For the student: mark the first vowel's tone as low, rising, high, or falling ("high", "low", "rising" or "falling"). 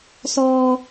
high